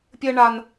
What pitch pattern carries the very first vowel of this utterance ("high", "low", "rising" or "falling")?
low